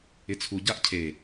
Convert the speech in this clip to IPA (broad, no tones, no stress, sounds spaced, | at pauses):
ɪ t͡sʰ u ɟ a ʔ cʰ e